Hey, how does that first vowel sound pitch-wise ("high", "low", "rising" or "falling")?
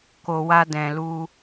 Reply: low